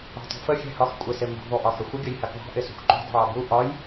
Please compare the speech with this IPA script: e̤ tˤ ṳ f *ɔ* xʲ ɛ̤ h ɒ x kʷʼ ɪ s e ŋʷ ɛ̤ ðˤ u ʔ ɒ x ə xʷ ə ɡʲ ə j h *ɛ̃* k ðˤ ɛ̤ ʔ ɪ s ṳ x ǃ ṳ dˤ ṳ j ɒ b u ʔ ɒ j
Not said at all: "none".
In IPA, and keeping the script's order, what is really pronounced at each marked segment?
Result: ə, ɛ

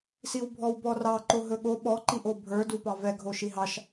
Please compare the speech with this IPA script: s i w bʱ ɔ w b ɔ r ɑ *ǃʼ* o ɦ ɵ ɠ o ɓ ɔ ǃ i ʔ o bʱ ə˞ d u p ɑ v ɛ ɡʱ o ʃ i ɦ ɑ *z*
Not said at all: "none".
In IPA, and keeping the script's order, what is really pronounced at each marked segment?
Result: ǃ, ʃ

